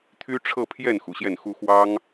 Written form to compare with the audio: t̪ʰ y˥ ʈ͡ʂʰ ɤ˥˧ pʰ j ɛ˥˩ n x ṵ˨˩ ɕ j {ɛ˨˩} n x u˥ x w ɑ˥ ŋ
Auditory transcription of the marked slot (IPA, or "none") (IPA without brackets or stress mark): ɛ˥˩